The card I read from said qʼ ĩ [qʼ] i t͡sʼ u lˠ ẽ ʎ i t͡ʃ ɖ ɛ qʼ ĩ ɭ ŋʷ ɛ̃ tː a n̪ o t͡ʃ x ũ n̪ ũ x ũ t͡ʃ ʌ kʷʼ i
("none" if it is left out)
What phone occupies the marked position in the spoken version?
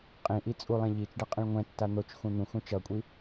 ʔ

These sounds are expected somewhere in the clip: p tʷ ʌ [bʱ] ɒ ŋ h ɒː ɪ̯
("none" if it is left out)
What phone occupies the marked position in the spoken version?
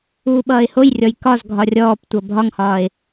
bʱ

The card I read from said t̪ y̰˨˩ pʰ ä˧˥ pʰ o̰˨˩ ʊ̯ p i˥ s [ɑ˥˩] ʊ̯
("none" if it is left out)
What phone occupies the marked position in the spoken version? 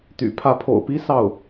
ɑ˥˩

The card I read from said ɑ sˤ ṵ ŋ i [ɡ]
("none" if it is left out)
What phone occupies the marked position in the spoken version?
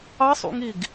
ɡ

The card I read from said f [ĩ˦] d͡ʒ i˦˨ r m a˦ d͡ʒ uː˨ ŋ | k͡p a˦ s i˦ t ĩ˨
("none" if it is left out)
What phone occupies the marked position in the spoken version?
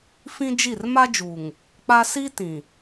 ĩ˦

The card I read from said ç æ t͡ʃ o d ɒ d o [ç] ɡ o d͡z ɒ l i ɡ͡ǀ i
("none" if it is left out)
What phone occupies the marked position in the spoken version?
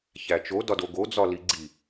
none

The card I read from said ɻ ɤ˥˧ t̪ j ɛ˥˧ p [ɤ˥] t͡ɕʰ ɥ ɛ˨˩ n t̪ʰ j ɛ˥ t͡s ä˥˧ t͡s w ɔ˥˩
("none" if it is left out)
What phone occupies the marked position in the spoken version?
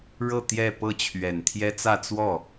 ɤ˥˩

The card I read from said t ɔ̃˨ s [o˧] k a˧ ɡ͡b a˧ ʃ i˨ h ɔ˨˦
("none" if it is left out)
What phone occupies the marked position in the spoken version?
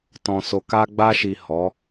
o˨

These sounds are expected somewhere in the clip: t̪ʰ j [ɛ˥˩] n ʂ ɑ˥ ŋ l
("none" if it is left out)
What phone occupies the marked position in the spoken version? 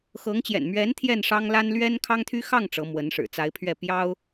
ɛ˥˩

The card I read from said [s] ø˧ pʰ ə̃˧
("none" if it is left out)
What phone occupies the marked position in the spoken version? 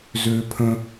z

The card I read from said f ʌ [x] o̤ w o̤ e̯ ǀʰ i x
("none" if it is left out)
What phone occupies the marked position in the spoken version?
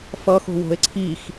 x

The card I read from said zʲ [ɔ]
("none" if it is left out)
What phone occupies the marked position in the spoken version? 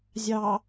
ɑ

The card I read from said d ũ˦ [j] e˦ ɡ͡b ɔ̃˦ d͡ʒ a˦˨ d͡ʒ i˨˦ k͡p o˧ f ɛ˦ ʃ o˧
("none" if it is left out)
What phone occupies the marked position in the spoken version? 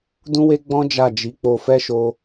w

